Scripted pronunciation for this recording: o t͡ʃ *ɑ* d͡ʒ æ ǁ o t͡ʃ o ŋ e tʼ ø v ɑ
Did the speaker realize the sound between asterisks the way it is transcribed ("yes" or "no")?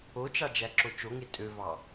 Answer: yes